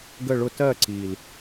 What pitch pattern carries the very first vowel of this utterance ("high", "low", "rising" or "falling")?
falling